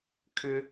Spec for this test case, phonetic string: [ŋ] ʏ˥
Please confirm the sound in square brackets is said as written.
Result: no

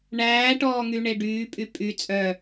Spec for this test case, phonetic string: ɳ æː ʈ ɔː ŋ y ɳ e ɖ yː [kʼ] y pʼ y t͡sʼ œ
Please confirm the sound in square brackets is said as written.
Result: no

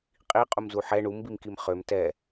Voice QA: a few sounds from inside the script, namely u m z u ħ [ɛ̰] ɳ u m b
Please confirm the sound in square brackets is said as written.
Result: no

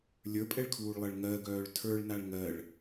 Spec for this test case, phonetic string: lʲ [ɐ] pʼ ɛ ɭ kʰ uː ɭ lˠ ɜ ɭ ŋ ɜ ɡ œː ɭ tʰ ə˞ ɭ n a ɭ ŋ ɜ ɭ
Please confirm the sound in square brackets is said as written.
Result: no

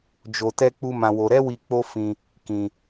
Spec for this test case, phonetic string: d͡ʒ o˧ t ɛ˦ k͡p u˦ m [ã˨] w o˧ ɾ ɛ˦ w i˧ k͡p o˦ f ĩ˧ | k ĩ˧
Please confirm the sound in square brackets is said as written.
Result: no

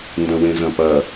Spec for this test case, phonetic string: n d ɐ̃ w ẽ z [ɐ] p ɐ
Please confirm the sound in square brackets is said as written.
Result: no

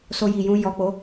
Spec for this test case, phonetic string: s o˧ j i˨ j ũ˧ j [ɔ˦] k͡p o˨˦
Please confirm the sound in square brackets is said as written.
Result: no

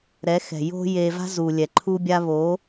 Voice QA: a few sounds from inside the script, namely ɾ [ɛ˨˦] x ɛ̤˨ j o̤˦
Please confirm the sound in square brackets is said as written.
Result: yes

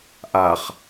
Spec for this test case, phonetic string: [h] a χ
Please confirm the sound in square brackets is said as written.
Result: no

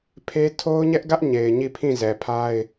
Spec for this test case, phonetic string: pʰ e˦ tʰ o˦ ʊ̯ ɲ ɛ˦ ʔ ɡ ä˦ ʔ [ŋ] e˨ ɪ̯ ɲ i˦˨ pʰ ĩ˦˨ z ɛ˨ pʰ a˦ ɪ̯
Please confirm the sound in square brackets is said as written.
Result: no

